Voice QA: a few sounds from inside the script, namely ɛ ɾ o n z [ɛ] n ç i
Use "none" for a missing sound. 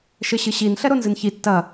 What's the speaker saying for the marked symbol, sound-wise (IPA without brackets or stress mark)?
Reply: ɨ